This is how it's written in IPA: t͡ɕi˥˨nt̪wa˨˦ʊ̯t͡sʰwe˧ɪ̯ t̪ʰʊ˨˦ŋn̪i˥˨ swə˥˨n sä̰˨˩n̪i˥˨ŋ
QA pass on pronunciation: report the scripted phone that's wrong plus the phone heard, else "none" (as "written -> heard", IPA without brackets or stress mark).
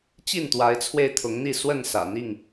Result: ʊ̯ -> ɪ̯